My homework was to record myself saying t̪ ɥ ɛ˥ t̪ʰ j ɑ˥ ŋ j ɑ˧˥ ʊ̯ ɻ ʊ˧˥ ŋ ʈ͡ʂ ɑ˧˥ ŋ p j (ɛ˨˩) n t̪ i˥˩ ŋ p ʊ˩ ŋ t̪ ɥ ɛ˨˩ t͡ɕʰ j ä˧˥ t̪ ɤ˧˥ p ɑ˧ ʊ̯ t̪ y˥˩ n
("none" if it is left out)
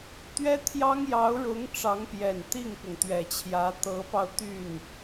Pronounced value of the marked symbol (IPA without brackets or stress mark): ɛ˨˩